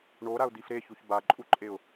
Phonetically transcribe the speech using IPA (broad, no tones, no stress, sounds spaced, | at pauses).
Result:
ɳ o ɾ a ʊ̯ d̪ i f ɾ e ç u ç b a ǃʼ u ǃʼ e ʊ̯